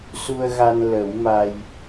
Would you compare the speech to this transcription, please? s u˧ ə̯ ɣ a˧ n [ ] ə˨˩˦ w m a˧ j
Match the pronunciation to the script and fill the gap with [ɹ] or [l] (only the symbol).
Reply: l